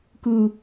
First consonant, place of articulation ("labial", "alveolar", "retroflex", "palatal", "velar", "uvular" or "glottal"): velar